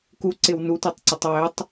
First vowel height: high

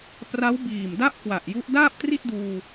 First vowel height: low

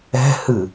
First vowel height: mid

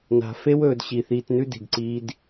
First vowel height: low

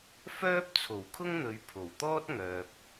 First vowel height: mid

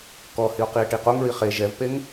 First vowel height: mid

